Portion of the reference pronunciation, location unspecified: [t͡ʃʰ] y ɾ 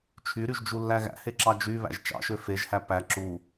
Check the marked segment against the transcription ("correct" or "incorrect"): correct